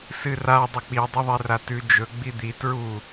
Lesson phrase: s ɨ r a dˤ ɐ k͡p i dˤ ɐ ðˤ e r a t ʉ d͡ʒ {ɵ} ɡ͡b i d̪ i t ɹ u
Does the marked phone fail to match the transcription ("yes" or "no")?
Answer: no